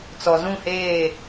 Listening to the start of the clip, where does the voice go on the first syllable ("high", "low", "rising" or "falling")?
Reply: low